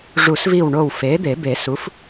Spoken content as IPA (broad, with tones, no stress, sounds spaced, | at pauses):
ʐ u˨˩˦ s v i˧˩ w ɳ o˧˩ w f e˩˥ d̪ e˨˩˦ b e˨˩˦ s u˩˥ f